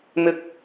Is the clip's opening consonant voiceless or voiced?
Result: voiced